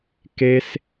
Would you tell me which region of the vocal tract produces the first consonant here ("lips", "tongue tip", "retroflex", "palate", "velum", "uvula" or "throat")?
velum